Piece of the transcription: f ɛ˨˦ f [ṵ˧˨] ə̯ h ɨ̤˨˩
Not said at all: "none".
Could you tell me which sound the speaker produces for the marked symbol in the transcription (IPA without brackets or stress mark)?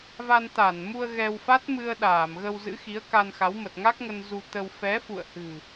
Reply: ṵ˧˨